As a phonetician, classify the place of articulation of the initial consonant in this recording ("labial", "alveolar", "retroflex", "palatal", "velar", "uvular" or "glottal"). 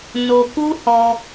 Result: alveolar